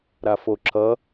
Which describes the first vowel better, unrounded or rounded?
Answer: unrounded